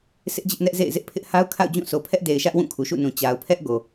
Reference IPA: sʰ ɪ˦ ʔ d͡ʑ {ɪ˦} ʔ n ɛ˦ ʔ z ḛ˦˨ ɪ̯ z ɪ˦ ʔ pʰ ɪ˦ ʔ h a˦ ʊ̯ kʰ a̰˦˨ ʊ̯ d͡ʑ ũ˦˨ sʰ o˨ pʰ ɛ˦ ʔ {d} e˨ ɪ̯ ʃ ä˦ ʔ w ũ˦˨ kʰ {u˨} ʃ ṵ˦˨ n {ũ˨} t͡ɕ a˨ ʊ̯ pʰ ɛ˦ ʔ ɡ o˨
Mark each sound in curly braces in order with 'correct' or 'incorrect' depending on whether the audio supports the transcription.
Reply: correct, correct, correct, correct

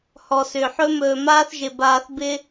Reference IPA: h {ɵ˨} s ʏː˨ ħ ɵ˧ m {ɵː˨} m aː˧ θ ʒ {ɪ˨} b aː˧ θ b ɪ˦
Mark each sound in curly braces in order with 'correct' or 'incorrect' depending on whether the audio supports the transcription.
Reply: incorrect: ɔ˨, correct, incorrect: ɪ˧

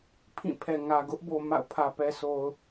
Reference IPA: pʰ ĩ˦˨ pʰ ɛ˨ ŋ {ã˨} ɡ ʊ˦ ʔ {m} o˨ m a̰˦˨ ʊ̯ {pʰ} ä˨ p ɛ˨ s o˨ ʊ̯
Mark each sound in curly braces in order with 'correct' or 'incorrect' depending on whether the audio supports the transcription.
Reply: incorrect: ä˨, incorrect: b, correct

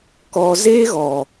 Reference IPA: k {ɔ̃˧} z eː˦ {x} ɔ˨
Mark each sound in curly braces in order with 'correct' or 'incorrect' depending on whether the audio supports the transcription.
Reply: incorrect: ɔ˧, incorrect: ɣ

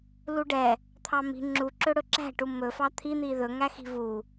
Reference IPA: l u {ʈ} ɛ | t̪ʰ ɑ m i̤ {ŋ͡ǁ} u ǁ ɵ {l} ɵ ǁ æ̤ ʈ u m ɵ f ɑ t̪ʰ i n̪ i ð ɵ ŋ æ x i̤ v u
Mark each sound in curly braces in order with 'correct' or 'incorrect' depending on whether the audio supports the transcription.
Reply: incorrect: ɖ, correct, incorrect: ɽ

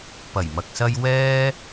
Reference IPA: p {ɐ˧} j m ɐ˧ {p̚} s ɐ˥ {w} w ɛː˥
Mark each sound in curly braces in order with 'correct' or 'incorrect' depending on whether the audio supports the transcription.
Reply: incorrect: ɐ˨˩, incorrect: k̚, incorrect: j

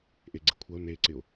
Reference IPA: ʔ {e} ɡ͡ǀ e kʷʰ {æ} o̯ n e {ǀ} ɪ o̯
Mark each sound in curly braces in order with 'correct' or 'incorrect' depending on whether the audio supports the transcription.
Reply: correct, incorrect: ɐ, correct

